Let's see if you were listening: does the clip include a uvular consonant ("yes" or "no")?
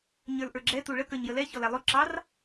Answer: no